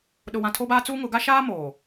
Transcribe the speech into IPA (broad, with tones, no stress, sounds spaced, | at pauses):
ɗ ʊ˨ w ã˨ tʰ o˦ b aː˦ t͡s uː˦ ŋ ʊ˨˦ ɡ a˦ ʃ aː˦ m oː˨